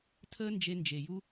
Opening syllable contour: high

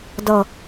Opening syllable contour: falling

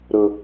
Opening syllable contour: low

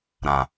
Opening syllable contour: low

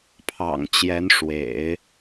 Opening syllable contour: low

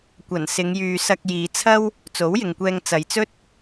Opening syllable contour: low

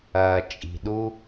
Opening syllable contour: low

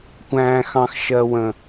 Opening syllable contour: high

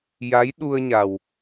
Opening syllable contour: rising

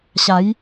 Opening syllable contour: rising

